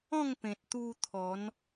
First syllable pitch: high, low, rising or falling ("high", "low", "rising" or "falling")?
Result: falling